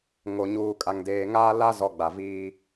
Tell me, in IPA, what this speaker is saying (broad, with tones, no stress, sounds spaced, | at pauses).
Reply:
ŋ o˨ ɲ uː˨ kʼ a˨ ŋ d eː˨ ŋ aː˦ l a˦ z ɔ˨ ɡ͡b a˨ v iː˦